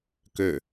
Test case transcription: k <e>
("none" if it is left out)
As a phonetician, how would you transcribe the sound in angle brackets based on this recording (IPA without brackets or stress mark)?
ø